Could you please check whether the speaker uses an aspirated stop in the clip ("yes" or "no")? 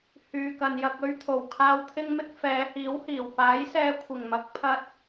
yes